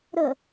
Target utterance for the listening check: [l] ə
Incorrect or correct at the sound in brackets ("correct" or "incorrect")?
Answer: incorrect